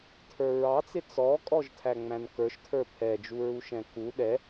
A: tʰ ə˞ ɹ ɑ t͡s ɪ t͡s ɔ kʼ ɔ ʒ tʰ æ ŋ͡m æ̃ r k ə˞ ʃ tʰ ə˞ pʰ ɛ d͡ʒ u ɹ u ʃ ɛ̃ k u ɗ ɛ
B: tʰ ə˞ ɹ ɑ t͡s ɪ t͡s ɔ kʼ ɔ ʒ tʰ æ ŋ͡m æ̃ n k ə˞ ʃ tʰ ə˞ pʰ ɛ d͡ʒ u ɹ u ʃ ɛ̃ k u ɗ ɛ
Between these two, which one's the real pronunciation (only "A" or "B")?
B